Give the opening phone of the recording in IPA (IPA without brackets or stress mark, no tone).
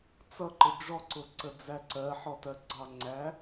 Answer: t͡s